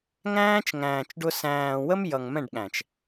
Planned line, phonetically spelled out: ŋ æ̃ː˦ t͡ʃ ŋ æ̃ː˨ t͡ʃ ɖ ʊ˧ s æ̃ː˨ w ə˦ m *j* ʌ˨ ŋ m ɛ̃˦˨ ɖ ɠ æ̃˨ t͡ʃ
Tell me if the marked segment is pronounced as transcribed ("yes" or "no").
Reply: yes